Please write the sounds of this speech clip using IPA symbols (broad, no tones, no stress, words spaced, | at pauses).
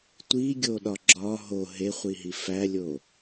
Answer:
tʷiɡʲoɗɒ ɡ͡ǁɒ ɦo ɦeχʷiɦi fælʲo